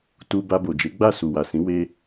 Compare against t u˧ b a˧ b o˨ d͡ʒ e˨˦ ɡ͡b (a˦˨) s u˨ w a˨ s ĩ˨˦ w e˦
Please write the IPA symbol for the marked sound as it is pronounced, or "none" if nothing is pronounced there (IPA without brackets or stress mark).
a˦˨